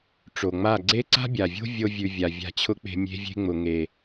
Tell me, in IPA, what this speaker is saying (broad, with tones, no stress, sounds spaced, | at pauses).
ʈ͡ʂ o˨ ŋ͡m a˦˨ ɡ͡ǀ e˦ ǀ a̤˦ bʲ a˨ vʲ o̤˦ vʲ o˦ vʲ ʉ˧ vʲ a˨ vʲ a̤˧ t͡ɕʰ ʊ˦ k͡p e̤˧ mʲ e̤˦ vʲ e̤˦ ŋ͡m ʊ˨ ŋ e˨